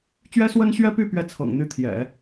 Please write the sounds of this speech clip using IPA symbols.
t͡ɕ ɥ ɛ˥ s w ə˥ n ɕ ɥ ɛ˥ p y˥˧ p ɥ ɛ˥˩ t͡sʰ ɤ̰˨˩ ŋ n̪ y˥˩ t̪ʰ j ɛ̰˨˩˦

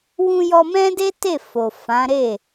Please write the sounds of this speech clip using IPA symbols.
w ũ˧ j ɔ˧ m ɛ̃˦ d e˦ t e˦˨ f o˨ f ã˨˦ ɾ e˦˨

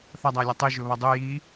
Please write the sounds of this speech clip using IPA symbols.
θ ɐ dˤ a lʲ ɐ tˤ ɨ ʒ ɵ β ɐ dˤ ʉ j i

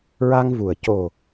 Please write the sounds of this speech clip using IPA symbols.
ɹ a˧ ŋ v u˨˩ ə̯ c o˨˩

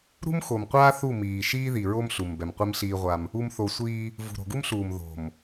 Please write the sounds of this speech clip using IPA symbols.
ɾ ṳ˦ m x o˨ m qʷ aː˦ θ u˦˨ m iː˨ ʃ iː˦ ð i˨ ɹ o˦ m ɬ u˨ m b ɛ˨ m qʷ i˦ m ɬ iː˦ ʁʷ a˦ m | u˨ m θ o˨ sʷ iː˦ | v ṳ˨ ɾ o̤˨ ɡ u˦ m ɬ uː˨ m ð o̤˨ m

